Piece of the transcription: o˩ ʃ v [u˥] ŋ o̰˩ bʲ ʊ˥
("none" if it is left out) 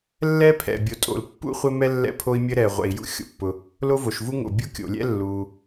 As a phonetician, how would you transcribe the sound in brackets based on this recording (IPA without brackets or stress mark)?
u˥